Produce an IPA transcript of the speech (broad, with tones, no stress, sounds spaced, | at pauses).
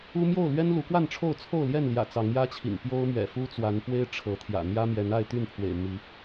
u˦ m j o˥˨ ʊ̯ l ɥ ɛ˦ n l u˨˦ k w a˥˨ n ʈ͡ʂʰ o˥˨ ʊ̯ t͡sʰ o˥˨ ʊ̯ l j ɛ˥˨ n l j ä̰˨˩ t͡s ɑ˨˦ ŋ j ä˦ t͡ɕʰ ḭ˨˩ ŋ p j o˦ ʊ̯ m ɥ ɛ̰˨˩ f u˦ t͡s w a˨˦ n p w e˦ ɪ̯ ʈ͡ʂʰ ɤ˨˦ t̪ʰ j ä̰˨˩ n̪ j ä˦ m j ɛ˨˦ n a˥˨ ɪ̯ t̪ y˥˨ n pʰ w ḛ˨˩ ɪ̯ m i˨˦